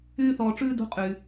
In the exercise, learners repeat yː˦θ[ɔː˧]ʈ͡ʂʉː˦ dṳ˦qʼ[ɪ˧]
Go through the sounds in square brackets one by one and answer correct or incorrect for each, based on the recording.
correct, incorrect: y˧

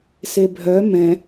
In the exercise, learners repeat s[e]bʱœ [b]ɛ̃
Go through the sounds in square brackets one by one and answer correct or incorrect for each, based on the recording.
correct, incorrect: m

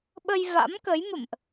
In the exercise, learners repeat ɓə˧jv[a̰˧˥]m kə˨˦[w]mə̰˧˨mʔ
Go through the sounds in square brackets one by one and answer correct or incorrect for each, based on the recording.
correct, incorrect: j

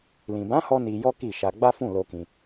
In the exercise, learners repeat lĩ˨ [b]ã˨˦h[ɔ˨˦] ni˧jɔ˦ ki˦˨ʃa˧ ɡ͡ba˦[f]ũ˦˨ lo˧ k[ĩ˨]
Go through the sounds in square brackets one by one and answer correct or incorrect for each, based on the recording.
correct, incorrect: ɔ˧, correct, incorrect: ĩ˧

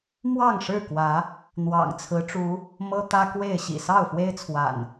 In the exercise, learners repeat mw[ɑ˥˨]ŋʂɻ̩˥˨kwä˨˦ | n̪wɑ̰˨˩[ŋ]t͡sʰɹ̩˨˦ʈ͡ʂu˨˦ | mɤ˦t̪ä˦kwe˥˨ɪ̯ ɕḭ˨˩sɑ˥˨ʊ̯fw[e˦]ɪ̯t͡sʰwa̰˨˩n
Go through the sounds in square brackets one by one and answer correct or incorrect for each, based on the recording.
correct, correct, correct

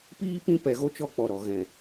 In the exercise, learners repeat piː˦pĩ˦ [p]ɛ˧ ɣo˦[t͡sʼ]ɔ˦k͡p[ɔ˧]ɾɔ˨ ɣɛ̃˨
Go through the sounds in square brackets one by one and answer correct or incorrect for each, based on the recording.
correct, incorrect: t͡ʃ, incorrect: ɔ˨

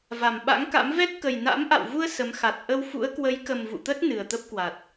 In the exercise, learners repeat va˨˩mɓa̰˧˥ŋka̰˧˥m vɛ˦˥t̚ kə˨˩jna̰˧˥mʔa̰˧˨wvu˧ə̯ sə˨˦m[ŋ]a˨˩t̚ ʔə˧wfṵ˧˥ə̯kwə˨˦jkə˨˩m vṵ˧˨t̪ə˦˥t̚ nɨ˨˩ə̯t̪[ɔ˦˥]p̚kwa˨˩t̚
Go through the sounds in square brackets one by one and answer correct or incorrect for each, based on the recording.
incorrect: x, incorrect: ə˦˥

